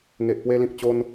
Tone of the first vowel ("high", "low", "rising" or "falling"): low